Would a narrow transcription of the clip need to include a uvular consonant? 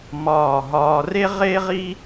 yes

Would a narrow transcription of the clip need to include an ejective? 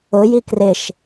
no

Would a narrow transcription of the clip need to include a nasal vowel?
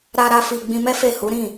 yes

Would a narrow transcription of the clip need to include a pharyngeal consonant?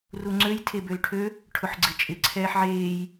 yes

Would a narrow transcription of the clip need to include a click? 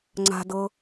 yes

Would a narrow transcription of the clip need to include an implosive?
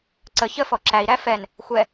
no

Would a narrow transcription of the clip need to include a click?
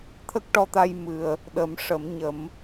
no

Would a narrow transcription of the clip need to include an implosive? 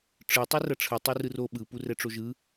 yes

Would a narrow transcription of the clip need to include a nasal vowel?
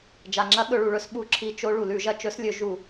no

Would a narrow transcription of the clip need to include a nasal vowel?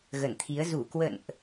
no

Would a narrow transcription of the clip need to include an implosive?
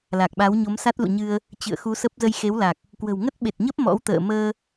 yes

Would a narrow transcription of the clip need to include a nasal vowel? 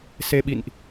no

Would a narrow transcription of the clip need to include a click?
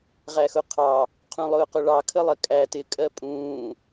no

